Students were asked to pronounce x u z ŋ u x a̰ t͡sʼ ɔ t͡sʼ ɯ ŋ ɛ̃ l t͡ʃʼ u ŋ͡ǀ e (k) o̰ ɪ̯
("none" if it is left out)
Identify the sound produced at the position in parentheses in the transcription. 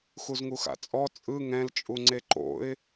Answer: ǃ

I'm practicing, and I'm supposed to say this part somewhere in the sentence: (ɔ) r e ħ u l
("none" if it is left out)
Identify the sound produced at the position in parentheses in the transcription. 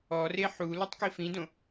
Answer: ɔ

